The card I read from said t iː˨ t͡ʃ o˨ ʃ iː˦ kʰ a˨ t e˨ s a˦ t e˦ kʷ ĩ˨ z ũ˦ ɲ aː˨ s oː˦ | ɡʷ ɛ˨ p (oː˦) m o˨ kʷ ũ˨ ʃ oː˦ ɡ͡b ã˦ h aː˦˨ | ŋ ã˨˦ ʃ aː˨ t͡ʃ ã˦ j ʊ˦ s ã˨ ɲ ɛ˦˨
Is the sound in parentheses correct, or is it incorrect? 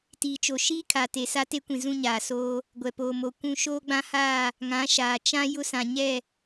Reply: incorrect